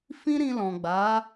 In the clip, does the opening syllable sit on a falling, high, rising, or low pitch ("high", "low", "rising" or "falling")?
high